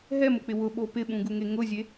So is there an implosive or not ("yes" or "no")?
yes